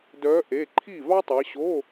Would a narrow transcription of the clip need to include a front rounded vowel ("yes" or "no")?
yes